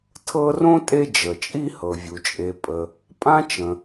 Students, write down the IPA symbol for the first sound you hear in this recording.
tʰ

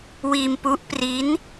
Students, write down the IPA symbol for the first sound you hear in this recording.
w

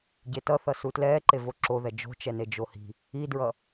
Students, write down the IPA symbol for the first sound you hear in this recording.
ɟ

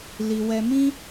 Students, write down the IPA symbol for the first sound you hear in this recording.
l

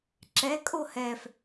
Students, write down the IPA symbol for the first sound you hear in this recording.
ǁ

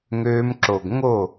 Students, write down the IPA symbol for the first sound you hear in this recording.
ŋ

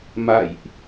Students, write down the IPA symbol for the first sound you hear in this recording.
m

